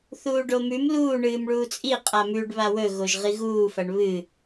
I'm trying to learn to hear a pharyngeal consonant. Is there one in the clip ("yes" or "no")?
no